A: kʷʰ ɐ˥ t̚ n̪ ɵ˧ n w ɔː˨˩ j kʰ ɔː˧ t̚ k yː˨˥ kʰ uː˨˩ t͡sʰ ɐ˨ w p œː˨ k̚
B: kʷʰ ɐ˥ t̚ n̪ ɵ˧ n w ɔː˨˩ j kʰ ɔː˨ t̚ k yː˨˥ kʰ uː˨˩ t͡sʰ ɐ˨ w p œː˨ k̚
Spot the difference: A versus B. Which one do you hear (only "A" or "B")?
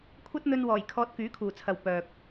A